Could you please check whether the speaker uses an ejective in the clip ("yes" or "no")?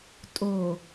yes